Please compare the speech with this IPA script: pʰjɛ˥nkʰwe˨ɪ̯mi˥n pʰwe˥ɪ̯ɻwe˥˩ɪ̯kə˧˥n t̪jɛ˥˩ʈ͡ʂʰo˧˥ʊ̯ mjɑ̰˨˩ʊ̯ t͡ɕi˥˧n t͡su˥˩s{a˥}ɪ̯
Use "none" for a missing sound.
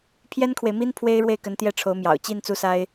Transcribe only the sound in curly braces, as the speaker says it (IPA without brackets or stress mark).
a˥